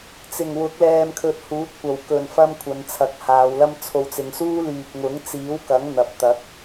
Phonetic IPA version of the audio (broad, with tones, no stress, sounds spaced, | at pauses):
t͡s ɪ˨˩ ŋ w ʊ˨˥ k̚ l ɛː˧ m kʰ ɵ˧ t̚ h uː˨˥ t̚ kʷ ɐ˨ w k ɵ˨˩ n f ɐ˧ m kʷʰ ɐ˨˧ n t͡sʰ ɐ˨˥ k̚ h aː˨˧ w l ɐ˥ m t͡sʰ o˨ w t͡s ɪ˨ ŋ s uː˥ l yː˧ p̚ ŋ ʊ˨˥ ŋ t͡s iː˨˥ w k ɐ˨˥ ŋ n̪ ɐ˧ p̚ t̪ ɐ˨˥ k̚